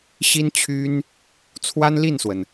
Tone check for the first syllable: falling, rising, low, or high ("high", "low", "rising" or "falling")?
high